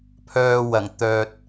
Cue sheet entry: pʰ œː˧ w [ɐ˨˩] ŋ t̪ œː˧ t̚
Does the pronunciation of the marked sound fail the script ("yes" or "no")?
no